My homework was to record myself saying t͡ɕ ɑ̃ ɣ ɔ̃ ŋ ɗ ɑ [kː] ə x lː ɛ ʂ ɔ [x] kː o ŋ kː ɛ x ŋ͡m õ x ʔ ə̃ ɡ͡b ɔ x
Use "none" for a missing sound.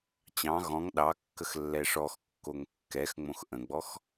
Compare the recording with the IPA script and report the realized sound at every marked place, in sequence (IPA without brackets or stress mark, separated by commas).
kː, x